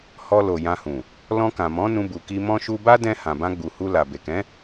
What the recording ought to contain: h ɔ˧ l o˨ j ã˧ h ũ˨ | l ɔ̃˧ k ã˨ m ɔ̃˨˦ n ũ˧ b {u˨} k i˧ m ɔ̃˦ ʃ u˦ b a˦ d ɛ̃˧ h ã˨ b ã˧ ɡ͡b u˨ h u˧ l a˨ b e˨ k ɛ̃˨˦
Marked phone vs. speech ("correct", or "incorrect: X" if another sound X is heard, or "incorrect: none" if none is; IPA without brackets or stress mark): correct